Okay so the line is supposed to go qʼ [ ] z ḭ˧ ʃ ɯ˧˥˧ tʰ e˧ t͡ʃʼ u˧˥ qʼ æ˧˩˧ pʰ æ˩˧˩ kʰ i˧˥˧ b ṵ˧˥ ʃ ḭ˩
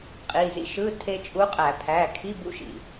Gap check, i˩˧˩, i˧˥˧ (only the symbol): i˩˧˩